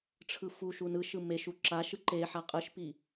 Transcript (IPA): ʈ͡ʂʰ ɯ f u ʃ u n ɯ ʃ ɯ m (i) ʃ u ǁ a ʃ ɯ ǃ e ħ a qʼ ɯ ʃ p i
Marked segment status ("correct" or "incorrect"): incorrect